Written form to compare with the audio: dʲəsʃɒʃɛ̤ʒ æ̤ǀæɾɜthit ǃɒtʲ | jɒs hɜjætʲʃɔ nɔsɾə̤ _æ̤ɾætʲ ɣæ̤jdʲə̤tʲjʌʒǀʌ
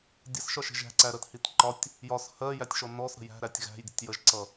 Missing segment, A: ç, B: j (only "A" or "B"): B